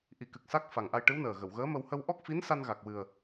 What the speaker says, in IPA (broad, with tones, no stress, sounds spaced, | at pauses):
ʔ i˨˩˦ k ɨ˨˩ k̚ s a˦˥ k̚ f a˨˩ ŋ ʔ a˧ j ʈ ɨ˧˥ w n əː˨˩ ɣ ə˨˩˨ w ɣ əː˧˥ m ə˧ w h ə˧ w ʔ ɔ˦˥ k̚ f i˧˥ n s a˧ n ɣ a˨˩ k̚ w ɨ˨˩ ə̯